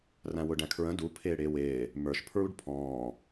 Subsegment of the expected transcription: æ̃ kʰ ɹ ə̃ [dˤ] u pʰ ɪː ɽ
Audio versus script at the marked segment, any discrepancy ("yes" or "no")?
yes